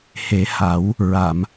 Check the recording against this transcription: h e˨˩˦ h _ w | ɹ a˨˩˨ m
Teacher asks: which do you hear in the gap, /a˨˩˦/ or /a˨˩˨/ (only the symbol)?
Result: a˨˩˦